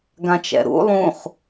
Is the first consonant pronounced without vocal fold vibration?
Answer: no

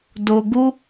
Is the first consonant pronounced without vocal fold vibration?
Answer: no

